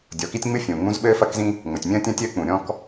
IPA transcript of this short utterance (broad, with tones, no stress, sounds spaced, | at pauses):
dʲ ɔ˩ k i˥ tʲ ŋ͡m ɨ˥ fʲ ũː˩ ŋ͡m ũ˥ z ɓ ɘː˥ f ɐ˥ k z ĩ˥ | ŋ͡m ɘ˩ tʲ mʲ ɐ̃ː˥ tʲ ɐ̃˥ tʲ ɘː˥ k͡p ũ˩ ɾʲ ɔ̃˥ k